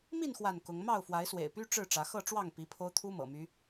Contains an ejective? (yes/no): no